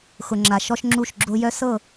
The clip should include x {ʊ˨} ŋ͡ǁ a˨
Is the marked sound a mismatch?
no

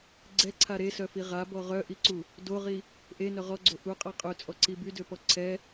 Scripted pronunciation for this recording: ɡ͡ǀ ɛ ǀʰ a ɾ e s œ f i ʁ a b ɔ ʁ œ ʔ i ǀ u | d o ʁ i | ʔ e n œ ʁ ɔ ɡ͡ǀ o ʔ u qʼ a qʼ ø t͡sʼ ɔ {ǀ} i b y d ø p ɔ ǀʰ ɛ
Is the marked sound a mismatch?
no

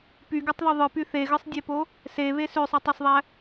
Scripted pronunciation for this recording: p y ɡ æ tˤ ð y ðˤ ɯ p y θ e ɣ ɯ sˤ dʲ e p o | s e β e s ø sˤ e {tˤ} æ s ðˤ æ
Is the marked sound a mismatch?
no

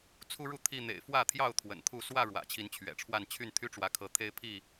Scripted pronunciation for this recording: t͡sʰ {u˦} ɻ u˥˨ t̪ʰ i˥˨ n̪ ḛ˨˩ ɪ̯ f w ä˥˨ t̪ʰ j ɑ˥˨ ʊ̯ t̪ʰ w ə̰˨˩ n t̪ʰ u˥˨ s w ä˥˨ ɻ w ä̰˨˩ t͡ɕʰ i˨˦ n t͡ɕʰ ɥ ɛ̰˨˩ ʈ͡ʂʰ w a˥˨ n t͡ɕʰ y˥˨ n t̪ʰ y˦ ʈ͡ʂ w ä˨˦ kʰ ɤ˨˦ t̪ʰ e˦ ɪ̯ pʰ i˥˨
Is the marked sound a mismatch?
no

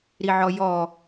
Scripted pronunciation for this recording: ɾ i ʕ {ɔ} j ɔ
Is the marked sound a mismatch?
no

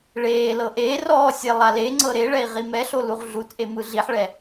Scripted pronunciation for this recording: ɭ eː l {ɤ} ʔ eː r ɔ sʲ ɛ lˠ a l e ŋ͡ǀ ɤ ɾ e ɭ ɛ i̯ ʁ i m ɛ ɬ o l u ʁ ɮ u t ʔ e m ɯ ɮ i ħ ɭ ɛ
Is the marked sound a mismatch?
no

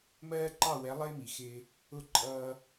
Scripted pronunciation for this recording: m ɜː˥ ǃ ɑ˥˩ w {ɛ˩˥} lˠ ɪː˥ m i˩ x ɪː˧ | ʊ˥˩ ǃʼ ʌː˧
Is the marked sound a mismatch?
no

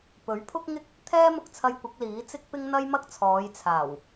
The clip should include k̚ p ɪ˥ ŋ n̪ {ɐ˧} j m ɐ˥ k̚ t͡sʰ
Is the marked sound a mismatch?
yes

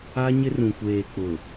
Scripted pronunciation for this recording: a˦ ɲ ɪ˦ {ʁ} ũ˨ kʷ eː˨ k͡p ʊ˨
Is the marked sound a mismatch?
yes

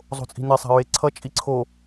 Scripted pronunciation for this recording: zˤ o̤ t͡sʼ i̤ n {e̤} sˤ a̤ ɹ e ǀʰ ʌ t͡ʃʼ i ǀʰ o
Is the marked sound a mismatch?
yes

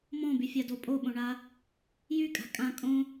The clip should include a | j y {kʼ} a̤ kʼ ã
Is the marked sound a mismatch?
no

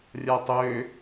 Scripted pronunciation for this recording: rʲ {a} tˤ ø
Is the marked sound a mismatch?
no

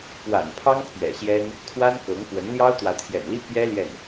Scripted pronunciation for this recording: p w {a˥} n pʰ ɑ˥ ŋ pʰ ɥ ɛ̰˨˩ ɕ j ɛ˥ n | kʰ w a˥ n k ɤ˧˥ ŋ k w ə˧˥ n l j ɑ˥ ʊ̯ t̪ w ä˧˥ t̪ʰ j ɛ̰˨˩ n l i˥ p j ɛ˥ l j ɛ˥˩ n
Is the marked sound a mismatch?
yes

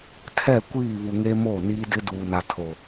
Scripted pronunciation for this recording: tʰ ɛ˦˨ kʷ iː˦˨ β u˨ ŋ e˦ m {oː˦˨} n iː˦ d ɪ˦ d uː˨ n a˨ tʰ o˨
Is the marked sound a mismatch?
no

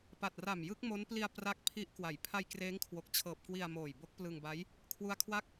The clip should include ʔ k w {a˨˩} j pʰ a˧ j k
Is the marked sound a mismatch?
yes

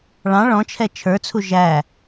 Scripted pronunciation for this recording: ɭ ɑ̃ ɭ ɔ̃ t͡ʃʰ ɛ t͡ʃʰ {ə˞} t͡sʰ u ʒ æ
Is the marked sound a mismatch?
no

